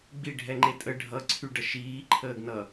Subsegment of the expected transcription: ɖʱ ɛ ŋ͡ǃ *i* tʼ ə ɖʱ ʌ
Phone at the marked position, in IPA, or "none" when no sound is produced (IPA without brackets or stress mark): e